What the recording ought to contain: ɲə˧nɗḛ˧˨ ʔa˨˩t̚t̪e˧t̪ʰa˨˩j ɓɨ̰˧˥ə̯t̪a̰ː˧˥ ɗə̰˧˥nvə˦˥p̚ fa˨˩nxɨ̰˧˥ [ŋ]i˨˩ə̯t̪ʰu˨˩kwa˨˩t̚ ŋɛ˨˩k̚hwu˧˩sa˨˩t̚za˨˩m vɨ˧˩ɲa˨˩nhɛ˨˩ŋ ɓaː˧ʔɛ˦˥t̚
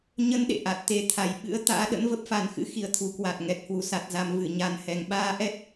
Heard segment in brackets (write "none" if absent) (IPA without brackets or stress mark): x